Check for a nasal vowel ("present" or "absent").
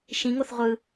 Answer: present